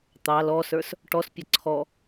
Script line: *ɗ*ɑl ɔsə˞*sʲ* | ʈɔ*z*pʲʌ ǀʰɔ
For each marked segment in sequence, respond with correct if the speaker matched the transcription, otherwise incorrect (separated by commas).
incorrect, incorrect, incorrect